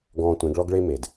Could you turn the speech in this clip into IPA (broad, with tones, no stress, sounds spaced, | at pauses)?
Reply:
ɡ ɔ̃ː˧ tʷ ẽ˨˦ ɡ ɭ ɔ˦ ɡ ɭ e˦ m e˨ d